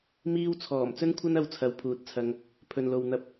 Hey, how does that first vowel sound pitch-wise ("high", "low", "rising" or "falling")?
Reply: high